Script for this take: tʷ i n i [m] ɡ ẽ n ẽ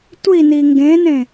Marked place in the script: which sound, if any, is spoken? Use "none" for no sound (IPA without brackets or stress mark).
ŋ